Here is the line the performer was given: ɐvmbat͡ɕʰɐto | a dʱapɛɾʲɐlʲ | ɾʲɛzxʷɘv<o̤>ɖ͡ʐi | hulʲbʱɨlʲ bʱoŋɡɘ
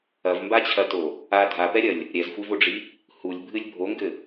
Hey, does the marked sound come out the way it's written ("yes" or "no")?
no